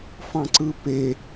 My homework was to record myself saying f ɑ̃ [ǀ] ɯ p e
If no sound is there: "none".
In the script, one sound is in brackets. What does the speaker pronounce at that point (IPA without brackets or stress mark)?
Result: ǀ